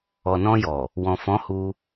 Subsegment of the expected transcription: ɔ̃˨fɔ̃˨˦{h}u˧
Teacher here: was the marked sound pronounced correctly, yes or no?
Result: yes